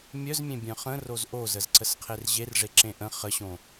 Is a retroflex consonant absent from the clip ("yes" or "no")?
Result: no